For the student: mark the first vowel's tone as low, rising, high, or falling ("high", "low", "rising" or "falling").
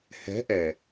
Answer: rising